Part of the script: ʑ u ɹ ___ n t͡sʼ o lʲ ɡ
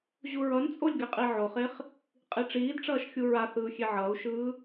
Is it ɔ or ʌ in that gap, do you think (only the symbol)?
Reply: ʌ